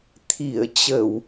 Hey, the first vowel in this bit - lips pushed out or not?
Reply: no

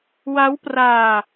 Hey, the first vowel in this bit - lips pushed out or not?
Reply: no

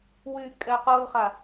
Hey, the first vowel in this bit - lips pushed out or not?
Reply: yes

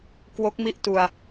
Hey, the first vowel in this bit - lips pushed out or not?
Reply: yes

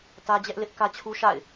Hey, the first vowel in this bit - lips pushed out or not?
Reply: no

